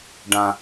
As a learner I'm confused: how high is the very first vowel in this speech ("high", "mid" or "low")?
low